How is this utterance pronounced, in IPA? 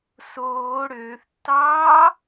s oː ɽ øː θ tː ɑː

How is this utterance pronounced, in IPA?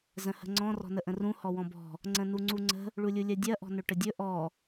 z ə̃ h ə̤ ŋ͡ǀ ɔ̃ r ɔ̤ n ə ʔ ə̃ r ũ h ɔ w ɔ̃ b ɔ̤ | ŋ͡ǀ ə̃ n u ŋ͡ǀ u ŋ͡ǀ ə̤ | ɭ u lʲ u lʲ ɜ dʲ ɜ ʔ ɔ̤ n ɵ ʈ ə dʲ ɵ ʔ ɔ

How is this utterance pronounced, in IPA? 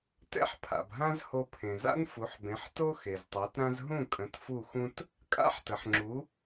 t ɛ̰˥ ħ pʰ a̰˩ b ɦ ã˥ z h o˧ pʰ ẽ˩ z a̰˥ n f u˩˥ ħ b ẽ˩˥ ħ t o˥ x e˩ z tˤ a˩˥ t ɾ ã˥ z ɦ ũ˥˩ kʼ ə̃˩˥ t f u˥˩ x ũ˥ t | kʼ a̰˥ ħ t ə˩ ħ ŋ͡ǁ u˩˥

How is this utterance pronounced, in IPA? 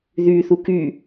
ð y θ u k y

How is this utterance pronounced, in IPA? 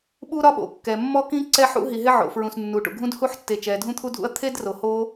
ɓ u˥ ɾ ɒ˥ ɓ o̰˩ kː ɛ˩ mː ɔ˥ k ĩ˥ ǀ ɛ˥ ħ ṵ˥ ɦ i˩ ɦ ɪ˥ ʕ o̰˩ f ɹ ũ˩ s nː u˩ ʈ ṵ˩ ɡʱ ũ˥ d h u˥ ħ tː e˩ t͡ʃ ɛ˩ dʱ ũ˥ t̪ʰ u˥ dʱ ṵ˥ ɐ̯ t̪ʰ e˥ d r o˩ h o˥

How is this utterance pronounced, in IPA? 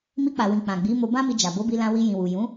m i˧ k͡p a˨ w ĩ˨ k͡p ã˨ ɡ͡b i˨˦ m o˧ b ã˦ m i˧ d͡ʒ a˨ b o˨˦ b i˧ l ã˧ w i˧ j ĩ˨ w u˨ j ũ˨˦

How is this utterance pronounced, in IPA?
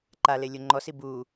ǃ a l e lʲ o ŋ͡ǃ ɔ s i b u

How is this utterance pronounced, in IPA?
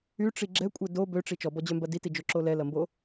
y ʈ͡ʂ i ɡ͡ǁ ɛ kʷʼ ɛ d o b ø ʈ͡ʂ i t͡ʃ ɔ b ɔ d͡ʑ œ m b ɐ d i t i d͡ʒ o ǁ o l ɛ l ɐ m b o

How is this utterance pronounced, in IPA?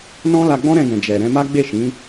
n ɔ̃˦ l a˧ ɡ͡b ɔ̃˦ ɾ ɛ̃˧ ɡ ɛ̃˨ d͡ʒ ɛ˨ ɾ ɛ̃˧ m a˦ ɡ͡b e˦˨ ʃ ĩ˨˦

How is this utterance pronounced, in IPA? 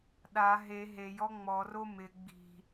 ɗ a ɦ e ɦ e j ɔ ŋ͡m ɔ r o m ɪ ɡ͡b i̤

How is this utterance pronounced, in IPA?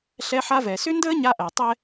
ɬ ɛ˦ ħ a˦ v ɛ˨ s ʏ˦ n d əː˦ ɲ a˦ ʔ æ˨ tˤ ɛ˦

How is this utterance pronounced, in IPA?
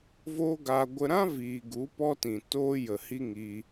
v o˦ ɡ aː˧ ɡʷ ə˧ ɾ ã˦ v iː˨ ɡ u˨˦ p ɔ˦ t ĩ˨ t oː˦ j ə˨ h i˦ ŋ iː˧

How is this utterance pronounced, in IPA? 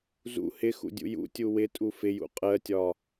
z ṵ h ɪ x ṵ dʲ ṵ j ṵ tʲ u w ɪ tʼ u f ɪ j ṵ qʼ ɜ tʲ ɒ

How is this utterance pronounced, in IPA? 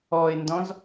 ɔ e̯ n d ɔ̃ z

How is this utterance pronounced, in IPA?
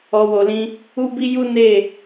ɔ˨ w o˨ l ĩ˧ | u˦ b i˦ j u˦ n e˦˨

